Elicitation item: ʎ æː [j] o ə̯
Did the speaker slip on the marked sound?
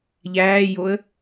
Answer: no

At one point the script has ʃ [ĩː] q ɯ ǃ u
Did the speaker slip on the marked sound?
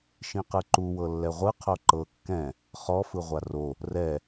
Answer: yes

